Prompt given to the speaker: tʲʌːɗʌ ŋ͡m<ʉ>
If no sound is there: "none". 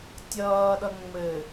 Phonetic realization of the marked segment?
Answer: ɘ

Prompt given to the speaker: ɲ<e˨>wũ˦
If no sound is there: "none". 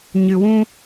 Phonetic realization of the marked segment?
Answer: ɨ˨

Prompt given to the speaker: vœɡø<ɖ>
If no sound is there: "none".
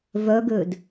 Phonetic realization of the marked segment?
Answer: d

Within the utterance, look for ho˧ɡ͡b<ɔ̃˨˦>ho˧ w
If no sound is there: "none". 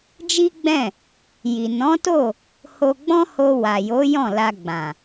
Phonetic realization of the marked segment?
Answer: ɔ̃˦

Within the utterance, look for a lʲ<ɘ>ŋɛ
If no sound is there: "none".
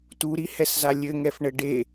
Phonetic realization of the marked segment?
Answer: ɘ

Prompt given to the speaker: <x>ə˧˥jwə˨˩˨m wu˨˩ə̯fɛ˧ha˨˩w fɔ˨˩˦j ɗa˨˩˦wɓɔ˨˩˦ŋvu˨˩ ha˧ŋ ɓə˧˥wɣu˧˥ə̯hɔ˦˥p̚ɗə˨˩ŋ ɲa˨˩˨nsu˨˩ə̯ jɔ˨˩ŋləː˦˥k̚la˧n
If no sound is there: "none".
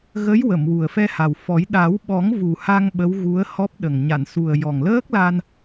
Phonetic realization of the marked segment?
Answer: ɣ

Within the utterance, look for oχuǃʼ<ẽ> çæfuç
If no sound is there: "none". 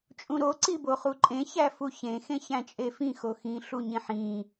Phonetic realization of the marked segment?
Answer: ẽ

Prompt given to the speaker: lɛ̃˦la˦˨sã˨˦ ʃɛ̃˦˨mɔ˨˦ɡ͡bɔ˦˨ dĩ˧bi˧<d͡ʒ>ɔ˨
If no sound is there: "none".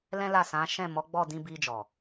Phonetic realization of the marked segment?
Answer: d͡ʒ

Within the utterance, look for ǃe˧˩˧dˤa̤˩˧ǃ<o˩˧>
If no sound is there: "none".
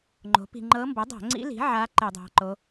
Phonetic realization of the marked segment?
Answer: o˩˧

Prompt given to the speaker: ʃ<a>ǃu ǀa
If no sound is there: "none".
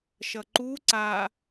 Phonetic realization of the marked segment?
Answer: ʌ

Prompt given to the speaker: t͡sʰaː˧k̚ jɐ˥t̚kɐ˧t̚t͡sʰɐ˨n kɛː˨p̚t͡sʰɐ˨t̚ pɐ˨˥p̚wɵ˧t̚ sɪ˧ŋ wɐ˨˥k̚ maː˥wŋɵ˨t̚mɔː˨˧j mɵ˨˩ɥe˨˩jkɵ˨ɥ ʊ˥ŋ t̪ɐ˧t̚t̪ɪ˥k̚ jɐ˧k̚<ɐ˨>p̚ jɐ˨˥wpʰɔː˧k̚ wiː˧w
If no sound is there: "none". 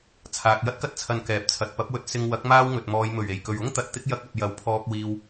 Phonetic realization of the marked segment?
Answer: ɐ˨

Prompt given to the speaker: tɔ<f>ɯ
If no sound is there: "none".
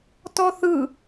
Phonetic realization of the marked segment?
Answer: θ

